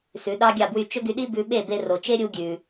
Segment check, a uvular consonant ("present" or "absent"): absent